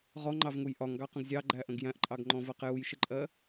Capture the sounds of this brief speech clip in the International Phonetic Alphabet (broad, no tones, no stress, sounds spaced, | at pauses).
ʁ ɔ ŋ͡ǃ ɑ v ŋ u j ʔ ɒ ŋ ɡ ɑ q ə̃ ɡ zʲ ɑ ɡ͡ǃ æ ʔ ə̃ ɡ j æ̃ ʔ ǃʼ ɑ ɡ ŋ͡ǃ ɔ̃ v ɜ q j u j ʃ ɪ ǃʼ ɜ